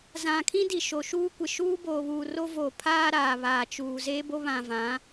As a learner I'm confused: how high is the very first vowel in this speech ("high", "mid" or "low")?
low